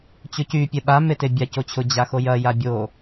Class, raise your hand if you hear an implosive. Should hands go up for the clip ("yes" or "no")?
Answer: yes